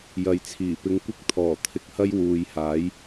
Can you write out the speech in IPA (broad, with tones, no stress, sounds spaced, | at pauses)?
j ɐ˨˧ j t͡sʰ iː˨˩ p ɪ˧ ŋ kʷ ɪ˥ k̚ t̪ʰ ɔː˨˩ t̪ʰ ɪ˧ k̚ h ɐ˥ j w uː˨ j h aː˨˥ j